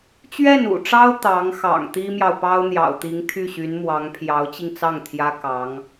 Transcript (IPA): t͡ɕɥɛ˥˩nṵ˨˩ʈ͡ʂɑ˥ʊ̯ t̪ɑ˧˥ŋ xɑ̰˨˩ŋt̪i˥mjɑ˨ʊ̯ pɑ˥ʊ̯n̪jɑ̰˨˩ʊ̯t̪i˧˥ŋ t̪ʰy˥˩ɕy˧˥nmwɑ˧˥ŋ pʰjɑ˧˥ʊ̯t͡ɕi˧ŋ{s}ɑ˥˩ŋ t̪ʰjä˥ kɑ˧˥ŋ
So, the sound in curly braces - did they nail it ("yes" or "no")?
no